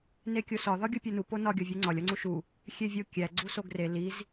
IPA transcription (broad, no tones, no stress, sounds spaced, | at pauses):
n e kʲ o s ɒ ð ɒ ɡʲ u pʲ o n u p o n ɒ ɡʲ ɒ vʲ u ŋ͡ǀ ɒ lʲ ɒ ŋ͡ǀ u ʃ u | xʲ e vʲ o kʲ æ ɡ͡ǀ u s o ɡ r e l i z